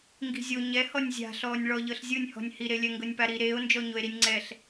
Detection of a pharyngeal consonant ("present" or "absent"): absent